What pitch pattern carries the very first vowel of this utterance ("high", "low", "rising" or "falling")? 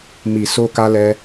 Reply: low